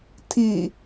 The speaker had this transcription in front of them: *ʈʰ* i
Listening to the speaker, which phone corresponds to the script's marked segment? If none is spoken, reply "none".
tʰ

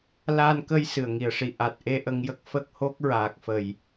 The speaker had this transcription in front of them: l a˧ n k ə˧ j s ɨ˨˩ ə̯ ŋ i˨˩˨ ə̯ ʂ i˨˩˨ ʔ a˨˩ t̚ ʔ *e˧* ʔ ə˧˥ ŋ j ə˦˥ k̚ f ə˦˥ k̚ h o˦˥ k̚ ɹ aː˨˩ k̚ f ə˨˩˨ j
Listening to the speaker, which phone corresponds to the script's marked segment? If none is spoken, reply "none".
e˧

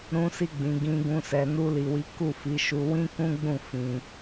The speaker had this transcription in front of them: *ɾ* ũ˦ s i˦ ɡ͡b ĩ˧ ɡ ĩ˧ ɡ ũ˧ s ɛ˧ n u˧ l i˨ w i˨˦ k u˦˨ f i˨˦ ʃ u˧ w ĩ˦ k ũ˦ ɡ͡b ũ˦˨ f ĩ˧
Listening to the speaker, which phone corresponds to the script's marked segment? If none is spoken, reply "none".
ɾ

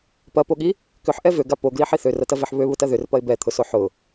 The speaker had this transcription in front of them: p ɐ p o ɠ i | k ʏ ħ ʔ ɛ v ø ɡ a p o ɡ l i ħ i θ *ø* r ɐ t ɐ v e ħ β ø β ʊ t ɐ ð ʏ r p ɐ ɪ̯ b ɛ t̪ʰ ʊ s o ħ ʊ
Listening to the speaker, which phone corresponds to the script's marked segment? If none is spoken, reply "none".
ø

